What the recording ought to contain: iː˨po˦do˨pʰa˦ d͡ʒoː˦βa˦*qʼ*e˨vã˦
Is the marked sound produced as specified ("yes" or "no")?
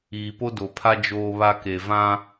no